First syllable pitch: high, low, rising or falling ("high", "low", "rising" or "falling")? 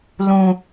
high